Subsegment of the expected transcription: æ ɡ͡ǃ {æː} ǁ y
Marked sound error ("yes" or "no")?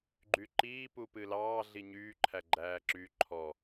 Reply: no